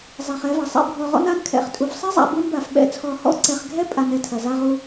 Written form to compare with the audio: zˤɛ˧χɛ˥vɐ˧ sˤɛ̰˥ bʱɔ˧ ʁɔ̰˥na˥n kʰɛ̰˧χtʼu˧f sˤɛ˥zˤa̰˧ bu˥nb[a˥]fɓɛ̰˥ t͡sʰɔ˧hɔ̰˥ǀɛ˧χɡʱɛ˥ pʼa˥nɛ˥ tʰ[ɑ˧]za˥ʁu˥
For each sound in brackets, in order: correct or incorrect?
incorrect: a˧, incorrect: ɐ˧

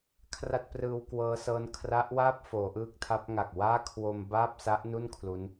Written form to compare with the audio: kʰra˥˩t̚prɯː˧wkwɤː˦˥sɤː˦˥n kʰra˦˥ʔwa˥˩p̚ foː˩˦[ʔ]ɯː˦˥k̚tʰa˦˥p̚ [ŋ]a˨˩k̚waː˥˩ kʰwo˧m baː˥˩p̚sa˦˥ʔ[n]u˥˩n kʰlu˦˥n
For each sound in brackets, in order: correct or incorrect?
correct, correct, correct

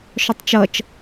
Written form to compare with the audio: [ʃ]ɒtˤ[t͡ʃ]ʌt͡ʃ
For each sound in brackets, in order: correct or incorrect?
correct, correct

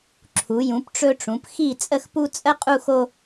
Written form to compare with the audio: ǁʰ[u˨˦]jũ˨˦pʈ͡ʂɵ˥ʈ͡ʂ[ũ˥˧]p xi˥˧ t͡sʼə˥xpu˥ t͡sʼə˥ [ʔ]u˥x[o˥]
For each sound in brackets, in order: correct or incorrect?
correct, incorrect: ũ˨˦, incorrect: qʼ, correct

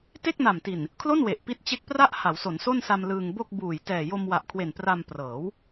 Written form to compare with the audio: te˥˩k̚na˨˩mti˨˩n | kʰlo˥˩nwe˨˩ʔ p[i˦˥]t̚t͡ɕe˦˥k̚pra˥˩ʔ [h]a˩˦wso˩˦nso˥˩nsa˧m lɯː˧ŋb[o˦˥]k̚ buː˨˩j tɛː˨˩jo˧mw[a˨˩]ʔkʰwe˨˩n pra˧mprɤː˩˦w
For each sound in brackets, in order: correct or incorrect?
correct, correct, incorrect: o˥˩, correct

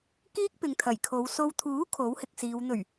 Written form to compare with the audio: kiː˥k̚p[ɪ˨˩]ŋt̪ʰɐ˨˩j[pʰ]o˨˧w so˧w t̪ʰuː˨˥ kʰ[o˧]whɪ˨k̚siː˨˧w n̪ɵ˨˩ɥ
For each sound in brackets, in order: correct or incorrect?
incorrect: ɪ˨, incorrect: kʰ, incorrect: o˨˥

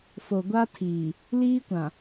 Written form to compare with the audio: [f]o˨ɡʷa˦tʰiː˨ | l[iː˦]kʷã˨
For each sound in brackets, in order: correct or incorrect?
correct, correct

